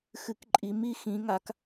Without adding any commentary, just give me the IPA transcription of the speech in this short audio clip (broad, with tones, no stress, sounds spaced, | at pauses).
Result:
x ɨ˨˦ k ǃʼ i˨˦ m i˨˦ x ĩ˨˦ ŋ a˨˦ k